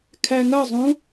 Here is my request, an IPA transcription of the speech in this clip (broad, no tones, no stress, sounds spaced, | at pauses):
kʰ æ ŋ ɐ zˤ ũ